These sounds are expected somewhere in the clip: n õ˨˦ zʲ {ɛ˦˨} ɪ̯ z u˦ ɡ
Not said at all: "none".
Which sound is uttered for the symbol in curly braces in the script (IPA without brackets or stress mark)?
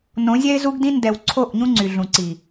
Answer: ɛ˦